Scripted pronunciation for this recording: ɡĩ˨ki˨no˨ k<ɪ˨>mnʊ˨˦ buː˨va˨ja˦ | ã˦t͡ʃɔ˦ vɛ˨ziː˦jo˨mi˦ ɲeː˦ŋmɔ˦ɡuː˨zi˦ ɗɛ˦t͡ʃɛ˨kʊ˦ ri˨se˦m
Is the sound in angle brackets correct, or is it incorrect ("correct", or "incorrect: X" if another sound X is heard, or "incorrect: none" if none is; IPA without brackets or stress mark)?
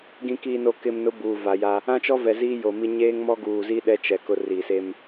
correct